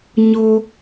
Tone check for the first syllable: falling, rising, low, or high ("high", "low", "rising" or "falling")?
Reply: high